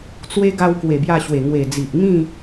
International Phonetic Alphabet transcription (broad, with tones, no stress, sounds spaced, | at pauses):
t͡s w e˧ ɡ a˧ w k w e˨˩ b j a˧ ɕ w e˨˩ ŋ w e˨˩ d͡z i˨ ʔ ŋ ĩ˥˧